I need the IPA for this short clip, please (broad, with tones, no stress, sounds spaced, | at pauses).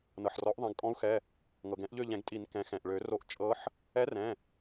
n ɤ˩ ħ r ɔ˩˥ ʔ ðˤ ɛ̃˩˧˩ ɡ kʼ ɔ̃˧˥ u̯ x ɛ˩˧˩ | ŋ ɤ˩ ɡ ɛ̃˨˩˦ ʔ ʎ ø˦˨ ʎ ɛ̃˨˩˦ ɡ tʼ i˨˩˦ n k ɛ̃˩˥ x ɛ̃˩ ʔ ɭ ø˨˩˦ r o˦˨ ʔ t͡ʃʼ ɤ˧˥ ħ | ɛ˧˥ r ɛ̃˩˧˩